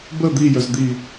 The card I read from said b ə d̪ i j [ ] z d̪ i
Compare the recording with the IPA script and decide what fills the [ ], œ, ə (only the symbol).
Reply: œ